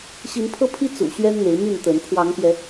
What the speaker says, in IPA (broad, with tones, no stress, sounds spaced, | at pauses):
ɕ i˨˦ n pʰ ɤ˦ pʰ i˦ t͡s ṵ˨˩ ɕ ɥ ɛ˦ n n̪ e˨˦ ɪ̯ m y˥˨ n t̪ ə˨˦ n pʰ w ɑ˨˦ ŋ p j ɛ˨˦